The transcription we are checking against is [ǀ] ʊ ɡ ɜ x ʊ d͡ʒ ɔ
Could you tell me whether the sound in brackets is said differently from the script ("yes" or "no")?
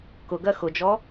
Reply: yes